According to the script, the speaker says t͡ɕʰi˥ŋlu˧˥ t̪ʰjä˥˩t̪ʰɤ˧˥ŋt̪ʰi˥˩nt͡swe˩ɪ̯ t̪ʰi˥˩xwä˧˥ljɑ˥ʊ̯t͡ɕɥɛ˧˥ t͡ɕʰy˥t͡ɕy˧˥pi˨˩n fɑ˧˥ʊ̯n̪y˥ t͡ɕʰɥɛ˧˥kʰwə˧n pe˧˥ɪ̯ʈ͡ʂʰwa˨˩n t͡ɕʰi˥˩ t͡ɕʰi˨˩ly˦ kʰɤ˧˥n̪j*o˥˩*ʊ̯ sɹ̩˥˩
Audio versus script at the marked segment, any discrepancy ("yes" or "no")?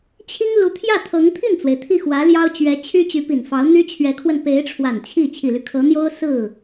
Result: yes